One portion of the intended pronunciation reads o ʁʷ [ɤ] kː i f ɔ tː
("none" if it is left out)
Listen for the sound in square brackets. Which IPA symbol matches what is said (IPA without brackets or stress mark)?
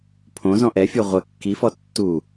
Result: ɤ